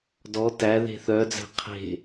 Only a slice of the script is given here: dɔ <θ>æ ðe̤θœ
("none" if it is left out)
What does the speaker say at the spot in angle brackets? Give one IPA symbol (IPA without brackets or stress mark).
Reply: t